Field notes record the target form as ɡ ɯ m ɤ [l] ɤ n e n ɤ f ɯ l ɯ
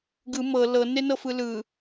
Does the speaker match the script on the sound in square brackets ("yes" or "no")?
yes